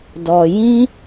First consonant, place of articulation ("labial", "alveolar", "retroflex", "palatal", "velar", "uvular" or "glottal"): alveolar